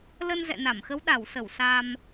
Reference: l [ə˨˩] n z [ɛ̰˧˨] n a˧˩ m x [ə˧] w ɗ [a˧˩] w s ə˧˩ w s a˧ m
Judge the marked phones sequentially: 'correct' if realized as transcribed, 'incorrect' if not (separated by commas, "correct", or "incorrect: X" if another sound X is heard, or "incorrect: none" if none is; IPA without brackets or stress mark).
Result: incorrect: ə˧, correct, incorrect: ə˨˦, correct